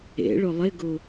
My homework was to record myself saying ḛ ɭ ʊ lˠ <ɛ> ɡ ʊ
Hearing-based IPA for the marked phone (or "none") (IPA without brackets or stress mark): ɪ